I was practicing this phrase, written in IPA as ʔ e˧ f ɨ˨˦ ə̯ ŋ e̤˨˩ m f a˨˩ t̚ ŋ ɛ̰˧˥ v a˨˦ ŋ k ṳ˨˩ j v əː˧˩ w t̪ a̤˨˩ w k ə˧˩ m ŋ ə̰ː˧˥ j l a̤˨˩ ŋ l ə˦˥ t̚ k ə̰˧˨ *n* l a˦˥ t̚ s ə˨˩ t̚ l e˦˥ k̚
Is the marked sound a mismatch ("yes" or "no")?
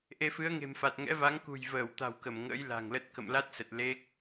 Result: yes